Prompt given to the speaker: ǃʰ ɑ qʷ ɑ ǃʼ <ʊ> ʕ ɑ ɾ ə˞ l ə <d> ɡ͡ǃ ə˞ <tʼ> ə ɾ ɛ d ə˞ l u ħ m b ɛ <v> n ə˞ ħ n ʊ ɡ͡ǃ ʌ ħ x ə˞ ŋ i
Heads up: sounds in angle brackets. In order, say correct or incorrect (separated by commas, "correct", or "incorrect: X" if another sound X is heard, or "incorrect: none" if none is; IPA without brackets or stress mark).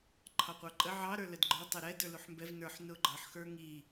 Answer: incorrect: ə, correct, incorrect: tˤ, correct